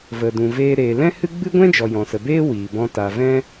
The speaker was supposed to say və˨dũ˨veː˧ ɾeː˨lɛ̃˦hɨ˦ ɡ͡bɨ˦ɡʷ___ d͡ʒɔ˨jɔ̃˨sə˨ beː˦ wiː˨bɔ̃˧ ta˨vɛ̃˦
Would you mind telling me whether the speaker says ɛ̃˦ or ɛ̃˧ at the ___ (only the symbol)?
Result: ɛ̃˦